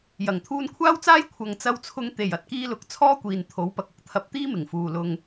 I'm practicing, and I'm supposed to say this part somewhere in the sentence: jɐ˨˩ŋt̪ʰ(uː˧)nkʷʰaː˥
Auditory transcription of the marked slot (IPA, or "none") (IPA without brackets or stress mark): uː˧